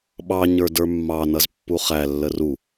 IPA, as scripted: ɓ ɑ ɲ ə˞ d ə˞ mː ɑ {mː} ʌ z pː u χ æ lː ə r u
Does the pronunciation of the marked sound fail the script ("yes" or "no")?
yes